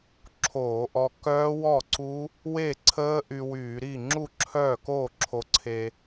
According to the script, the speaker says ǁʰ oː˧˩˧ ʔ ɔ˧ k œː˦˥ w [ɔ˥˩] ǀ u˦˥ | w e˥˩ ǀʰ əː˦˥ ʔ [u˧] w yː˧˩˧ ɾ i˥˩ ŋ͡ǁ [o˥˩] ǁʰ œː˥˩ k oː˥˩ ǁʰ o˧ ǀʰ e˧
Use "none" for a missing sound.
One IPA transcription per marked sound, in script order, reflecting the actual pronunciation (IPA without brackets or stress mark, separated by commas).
ɔ˥˩, y˧, u˥˩